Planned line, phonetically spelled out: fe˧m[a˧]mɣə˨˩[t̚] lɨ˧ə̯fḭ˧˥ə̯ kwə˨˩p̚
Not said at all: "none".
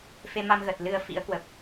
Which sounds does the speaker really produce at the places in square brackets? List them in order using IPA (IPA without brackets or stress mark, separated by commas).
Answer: a˧, t̚